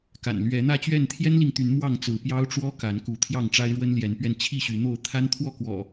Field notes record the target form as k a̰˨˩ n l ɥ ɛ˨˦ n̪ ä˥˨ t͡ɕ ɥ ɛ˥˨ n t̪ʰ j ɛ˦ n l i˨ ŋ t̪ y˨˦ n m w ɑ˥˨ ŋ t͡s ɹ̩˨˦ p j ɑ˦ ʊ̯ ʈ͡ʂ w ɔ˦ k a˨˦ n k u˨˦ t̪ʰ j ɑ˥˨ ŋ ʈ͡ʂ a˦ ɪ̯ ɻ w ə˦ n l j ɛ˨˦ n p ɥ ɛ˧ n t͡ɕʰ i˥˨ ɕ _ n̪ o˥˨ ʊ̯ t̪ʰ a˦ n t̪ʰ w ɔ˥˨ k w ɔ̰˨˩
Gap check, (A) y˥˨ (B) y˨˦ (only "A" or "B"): B